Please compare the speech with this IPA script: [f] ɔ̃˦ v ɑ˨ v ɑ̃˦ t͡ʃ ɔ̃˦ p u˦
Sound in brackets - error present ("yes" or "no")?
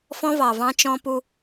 no